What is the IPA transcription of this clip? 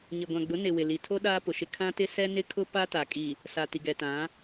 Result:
ɲ ɪ˨ ɡʷ ã˨ ɡ͡b ʊ˨˦ n ɪ˨ w ɪ˨ l i˨ tʰ o˦ ɗ aː˦ p ʊ˨ ʃ ɪ˦ kʰ ã˦ t ɪ˦ s ɛ˦ n ɪ˦ kʰ ʊ˦ p a˦ t a˨ kʼ i˨ | s a˨ t i˨ ɡ ɛ˨ t ã˨˦

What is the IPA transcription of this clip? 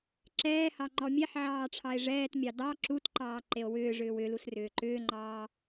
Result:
ǁ ɛː h ɑ ŋ͡ǃ ɔ mʲ ɛ ħ ʕ ɑː ʈ͡ʂʰ ɑ e̯ ʐ ɛː t mʲ ɑ d ɑ ǁ u t ǃ ɑː ǃ e o̯ w ʏː ʐ ʏː w ʏ l u s r ʏː ǃ ʏː ŋ͡ǃ ɑː

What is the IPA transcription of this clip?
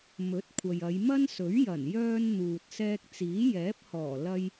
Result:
m ɵ˨˥ t̚ kʷʰ ɐ˨ j ɐ˨˧ j m ɐ˥ n s ɵ˨˥ ɥ j ɐ˨˩ n j œː˧ n n̪ uː˨ t̚ s ɛː˧ k̚ t͡s iː˨˥ j ɛː˨˥ p̚ h ɔː˨˩ l ɐ˧ j

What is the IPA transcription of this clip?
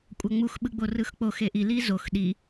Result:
kʷʼ ʌ ŋ͡m u x ɓ ɯ ɡ͡b o r ɯ x k͡p o x e ʔ i l i z o x ɗ i

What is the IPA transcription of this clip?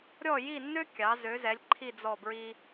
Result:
ɾʲ ɔ˥˧ j i˥˧ nː ø˥ kʲ ɑ˨˥ z ø˨˥ z ɛ˨˥ lʲ ǃʰ i˥˧ d͡z ɔ˥˧ b ɹ i˥

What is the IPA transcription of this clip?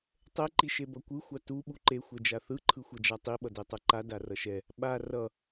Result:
tˤ ɛ ǃ i ʃ e b ʌ kʷ ɯ xʷ a t u ɓ u ǃ e xʷ ɛ d͡ʒ a θ ɯ ǃʰ ɯ xʷ ʌ d͡ʒ a tˤ i ɓ ʌ d ɛ tˤ ʌ ǃ a d a r ʌ ʃ ɛ | ɓ a r ʌ

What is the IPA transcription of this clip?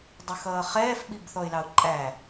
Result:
dˤ ə x ʌː χ ɛː f ɓ i b θ ɔ ɪ̯ l ɑ ʊ̯ ǃʼ æ

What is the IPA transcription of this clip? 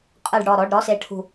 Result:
qʼ ɯ˦˨ ɖ ɽ ɔ˦˨ ɾ ɔ˧˥˧ ɖ ɾ ɔ˧˥˧ s e˦˨ ʈʰ ṳ˦˨

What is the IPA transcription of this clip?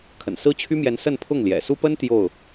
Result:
kʰ ə̰˨˩ n s ɹ̩˥ t͡ɕʰ y˥ m j ɛ˧˥ n s ə˥˧ n pʰ ʊ˥˩ ŋ l j ɛ̰˨˩ s u˥ p ə˥ n t̪ j o˥˩ ʊ̯

